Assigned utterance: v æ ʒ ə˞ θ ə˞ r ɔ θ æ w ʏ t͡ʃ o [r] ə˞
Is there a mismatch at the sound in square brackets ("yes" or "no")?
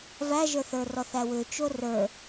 no